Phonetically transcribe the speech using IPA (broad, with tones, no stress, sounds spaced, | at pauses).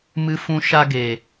m ɨ˦ f ũ˦ ʃ a˦ ɡ e˨